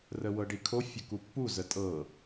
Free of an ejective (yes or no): no